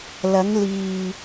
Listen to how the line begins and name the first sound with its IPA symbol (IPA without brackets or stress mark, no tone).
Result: l